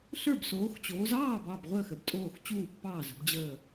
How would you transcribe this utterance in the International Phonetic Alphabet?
ɬə˞˥˨bsoː˨˦xt͡ɕoː˨˦z ɑː˥˨b ɑ˥˨bʁʷəː˥˨x ə˥˨btʼoː˥˨x t͡ɕuː˥˨pːɑː˥˨zə̤˨˦b d͡ʑəː˥˨

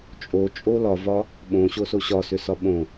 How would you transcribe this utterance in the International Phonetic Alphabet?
t͡ʃʼo t͡ʃʼolɒvɒ | ɓõɕoso ɕɒsʏsɒ ɓõ

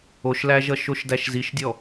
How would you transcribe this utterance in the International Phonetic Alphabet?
oʃlæʒʌʃ oʃdæʃziʃdʲɔ

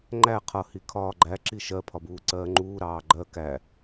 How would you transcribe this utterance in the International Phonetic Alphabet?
ŋ͡ǃæ qʰʌ hikʰɒːɡ͡ǃæǁi ʃɜpʰɒ buːǀɜːŋ͡ǃuːɾɑː ɡ͡ǃɜ kæ

